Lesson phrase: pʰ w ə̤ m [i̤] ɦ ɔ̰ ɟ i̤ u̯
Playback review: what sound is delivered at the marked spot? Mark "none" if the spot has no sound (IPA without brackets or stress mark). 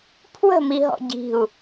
i